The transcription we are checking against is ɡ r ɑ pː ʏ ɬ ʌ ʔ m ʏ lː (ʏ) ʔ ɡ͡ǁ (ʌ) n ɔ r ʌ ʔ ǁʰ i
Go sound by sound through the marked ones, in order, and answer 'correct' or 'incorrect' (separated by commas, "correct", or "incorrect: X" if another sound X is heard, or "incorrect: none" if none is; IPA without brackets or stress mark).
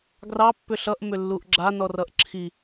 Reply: incorrect: u, incorrect: a